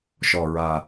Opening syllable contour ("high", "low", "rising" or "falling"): low